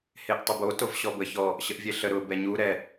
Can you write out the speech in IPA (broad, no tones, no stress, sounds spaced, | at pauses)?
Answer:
h e ʔ tˤ ə b o t o v ɕ ɔ b ə ç ɔ | ɕ ə ʔ vʲ e ɬ ə ɾ ʊ b ɛ ɲ u ɾ ɛ